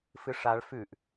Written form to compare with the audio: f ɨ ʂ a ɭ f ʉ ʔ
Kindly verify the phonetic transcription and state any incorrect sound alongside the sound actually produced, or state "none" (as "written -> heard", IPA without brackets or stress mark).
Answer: none